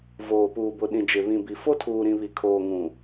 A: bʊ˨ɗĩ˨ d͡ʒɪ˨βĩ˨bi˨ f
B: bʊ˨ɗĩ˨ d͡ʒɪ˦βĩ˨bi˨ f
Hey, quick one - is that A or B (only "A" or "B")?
A